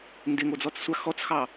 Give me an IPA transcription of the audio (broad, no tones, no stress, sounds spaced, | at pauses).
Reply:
n d ɪ ŋ o d͡z ɔ t͡s sʷ a x ɔ t͡s x ɑ